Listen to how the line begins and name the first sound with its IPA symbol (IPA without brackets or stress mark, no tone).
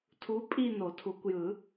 tʰ